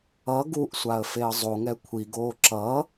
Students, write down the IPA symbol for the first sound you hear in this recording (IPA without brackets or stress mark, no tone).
ʌ